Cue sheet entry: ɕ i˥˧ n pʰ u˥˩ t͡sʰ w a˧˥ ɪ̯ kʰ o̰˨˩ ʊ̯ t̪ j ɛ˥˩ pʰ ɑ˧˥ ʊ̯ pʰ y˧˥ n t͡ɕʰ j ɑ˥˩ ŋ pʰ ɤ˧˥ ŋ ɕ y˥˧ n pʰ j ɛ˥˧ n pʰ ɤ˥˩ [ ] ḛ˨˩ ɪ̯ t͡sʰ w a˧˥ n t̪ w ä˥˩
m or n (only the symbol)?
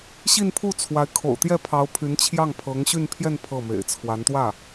m